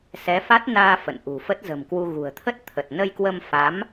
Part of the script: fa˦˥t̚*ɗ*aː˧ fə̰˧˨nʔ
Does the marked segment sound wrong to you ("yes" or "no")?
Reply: yes